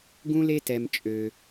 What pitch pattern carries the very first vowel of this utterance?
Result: high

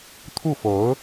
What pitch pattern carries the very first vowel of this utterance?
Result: falling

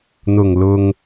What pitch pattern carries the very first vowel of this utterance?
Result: low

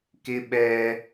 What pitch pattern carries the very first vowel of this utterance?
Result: high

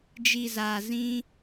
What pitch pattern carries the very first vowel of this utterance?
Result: low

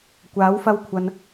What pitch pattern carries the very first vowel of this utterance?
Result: rising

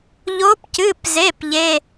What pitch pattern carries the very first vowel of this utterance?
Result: rising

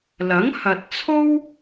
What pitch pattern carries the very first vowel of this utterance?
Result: rising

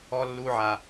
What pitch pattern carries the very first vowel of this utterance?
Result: low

